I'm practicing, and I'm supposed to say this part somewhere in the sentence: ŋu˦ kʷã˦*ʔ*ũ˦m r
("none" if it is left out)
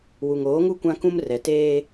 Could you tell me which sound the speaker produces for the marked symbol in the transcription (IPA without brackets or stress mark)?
k